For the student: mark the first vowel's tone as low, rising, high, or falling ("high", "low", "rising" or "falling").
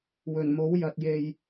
low